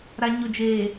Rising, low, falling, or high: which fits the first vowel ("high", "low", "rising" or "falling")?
low